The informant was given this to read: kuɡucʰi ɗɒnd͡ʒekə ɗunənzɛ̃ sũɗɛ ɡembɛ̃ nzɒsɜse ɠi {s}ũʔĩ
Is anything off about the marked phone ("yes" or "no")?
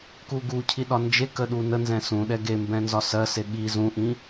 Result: yes